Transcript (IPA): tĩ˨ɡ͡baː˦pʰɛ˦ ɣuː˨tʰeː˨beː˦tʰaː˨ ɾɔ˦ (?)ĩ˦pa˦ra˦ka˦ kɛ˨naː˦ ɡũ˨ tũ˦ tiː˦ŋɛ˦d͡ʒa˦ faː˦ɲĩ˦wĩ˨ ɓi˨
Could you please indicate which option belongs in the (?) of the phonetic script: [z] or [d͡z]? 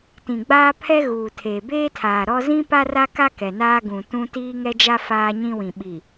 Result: z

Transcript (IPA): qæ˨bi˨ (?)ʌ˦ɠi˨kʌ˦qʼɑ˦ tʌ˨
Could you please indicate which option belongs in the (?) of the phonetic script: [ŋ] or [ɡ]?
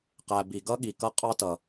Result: ɡ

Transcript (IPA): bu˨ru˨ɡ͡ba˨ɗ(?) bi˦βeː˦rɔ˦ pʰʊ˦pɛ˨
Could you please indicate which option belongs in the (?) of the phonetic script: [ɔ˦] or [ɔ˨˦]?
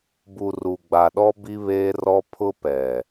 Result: ɔ˦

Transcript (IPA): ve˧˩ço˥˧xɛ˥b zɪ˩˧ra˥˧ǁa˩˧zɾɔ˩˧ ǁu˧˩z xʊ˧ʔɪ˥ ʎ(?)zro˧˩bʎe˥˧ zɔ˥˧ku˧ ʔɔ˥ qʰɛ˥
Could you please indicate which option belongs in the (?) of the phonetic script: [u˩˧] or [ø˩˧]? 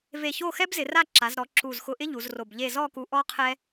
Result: u˩˧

